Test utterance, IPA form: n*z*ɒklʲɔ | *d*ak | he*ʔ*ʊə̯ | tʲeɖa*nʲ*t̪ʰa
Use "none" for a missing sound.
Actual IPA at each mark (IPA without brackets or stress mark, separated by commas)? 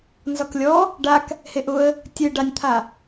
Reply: z, ɖ, ʔ, nʲ